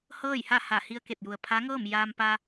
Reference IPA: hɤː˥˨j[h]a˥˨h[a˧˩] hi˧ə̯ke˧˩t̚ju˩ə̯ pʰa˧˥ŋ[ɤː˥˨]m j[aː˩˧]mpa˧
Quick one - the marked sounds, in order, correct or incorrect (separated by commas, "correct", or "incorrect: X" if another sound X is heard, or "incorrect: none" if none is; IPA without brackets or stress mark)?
correct, correct, correct, incorrect: aː˧